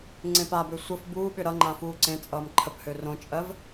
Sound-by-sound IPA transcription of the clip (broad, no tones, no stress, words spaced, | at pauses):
ŋ͡ǀẽpabø sʷəf buːɓʏ ɾʌ ŋ͡ǃãfuːǀẽt͡sʼʌːm ǃʰəphø rõt͡ʃʼɜv